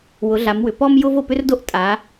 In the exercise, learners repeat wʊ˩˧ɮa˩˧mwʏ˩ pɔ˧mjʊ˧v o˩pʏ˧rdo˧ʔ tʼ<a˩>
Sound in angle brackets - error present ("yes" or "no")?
yes